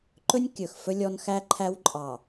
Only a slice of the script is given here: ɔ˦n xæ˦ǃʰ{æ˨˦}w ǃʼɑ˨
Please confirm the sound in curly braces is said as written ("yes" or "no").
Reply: no